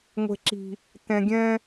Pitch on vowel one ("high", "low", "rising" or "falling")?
low